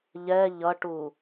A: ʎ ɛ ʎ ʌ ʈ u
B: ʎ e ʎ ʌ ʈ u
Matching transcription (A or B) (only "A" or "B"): A